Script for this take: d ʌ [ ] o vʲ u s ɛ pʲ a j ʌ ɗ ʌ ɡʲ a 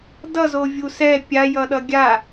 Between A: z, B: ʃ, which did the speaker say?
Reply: A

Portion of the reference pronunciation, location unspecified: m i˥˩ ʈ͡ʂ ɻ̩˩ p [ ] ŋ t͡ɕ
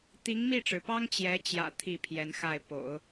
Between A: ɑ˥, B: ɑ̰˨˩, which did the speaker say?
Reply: A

